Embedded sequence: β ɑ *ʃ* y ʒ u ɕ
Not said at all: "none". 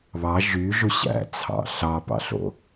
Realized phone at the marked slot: ʒ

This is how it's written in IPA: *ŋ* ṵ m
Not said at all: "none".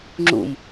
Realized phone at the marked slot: ŋ͡ǁ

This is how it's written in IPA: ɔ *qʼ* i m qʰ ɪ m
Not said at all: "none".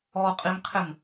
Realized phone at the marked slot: qʼ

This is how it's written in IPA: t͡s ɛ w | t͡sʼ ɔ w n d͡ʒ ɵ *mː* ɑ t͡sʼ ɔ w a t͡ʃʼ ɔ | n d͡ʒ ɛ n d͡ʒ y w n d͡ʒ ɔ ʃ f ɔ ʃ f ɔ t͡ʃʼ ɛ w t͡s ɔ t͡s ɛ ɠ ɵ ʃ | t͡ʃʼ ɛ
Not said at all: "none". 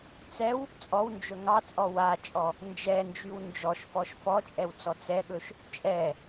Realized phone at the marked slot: ŋ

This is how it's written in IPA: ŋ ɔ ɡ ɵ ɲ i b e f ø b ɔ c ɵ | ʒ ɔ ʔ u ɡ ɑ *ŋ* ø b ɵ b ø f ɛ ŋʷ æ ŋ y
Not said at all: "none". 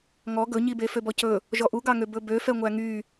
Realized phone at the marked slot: ŋ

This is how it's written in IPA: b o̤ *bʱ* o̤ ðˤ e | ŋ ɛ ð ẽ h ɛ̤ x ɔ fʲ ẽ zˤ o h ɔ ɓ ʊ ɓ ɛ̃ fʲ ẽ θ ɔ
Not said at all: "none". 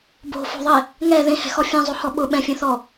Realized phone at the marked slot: f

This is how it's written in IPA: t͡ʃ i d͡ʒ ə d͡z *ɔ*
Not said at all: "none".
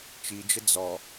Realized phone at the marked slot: ɔ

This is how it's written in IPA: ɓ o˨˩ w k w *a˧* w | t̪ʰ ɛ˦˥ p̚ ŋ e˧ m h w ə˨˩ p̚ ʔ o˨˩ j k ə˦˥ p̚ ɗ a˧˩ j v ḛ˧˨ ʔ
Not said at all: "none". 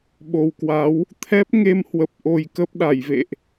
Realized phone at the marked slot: a˨˦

